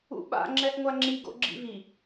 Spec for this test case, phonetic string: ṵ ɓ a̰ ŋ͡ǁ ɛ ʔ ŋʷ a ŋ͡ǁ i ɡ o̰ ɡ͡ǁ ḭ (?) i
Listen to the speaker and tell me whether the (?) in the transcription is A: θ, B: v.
B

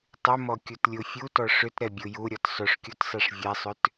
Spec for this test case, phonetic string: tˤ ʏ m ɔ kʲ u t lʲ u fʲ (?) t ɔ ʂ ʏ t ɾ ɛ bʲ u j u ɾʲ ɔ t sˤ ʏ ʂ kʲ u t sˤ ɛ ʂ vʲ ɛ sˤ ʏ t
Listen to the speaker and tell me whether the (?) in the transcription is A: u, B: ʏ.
A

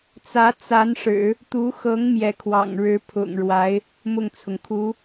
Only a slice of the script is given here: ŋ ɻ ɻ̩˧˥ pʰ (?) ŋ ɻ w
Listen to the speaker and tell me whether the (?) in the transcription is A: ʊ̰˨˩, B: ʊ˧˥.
A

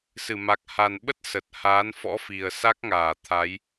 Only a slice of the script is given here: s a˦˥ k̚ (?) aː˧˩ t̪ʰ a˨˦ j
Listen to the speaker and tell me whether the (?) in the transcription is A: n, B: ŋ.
B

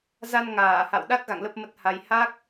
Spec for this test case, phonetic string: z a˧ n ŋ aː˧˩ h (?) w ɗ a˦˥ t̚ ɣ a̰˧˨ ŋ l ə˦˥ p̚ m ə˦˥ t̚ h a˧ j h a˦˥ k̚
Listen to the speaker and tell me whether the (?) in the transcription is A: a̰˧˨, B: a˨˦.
A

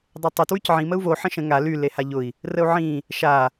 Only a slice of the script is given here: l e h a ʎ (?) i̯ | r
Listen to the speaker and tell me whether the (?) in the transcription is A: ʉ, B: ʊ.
B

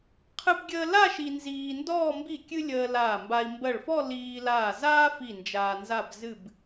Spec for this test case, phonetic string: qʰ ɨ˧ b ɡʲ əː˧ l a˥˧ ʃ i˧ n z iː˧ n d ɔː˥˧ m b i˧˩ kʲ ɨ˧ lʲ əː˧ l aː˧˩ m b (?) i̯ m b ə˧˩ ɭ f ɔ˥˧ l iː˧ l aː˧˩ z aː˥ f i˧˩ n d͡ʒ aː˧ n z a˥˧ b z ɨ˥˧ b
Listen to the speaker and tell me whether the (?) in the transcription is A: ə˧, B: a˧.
B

